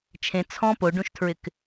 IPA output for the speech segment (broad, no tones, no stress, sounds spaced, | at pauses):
t͡ʃʰ ẽ t͡sʰ ɔ̃ p o ɖ ũ ʃ tʰ ɹ ɪ k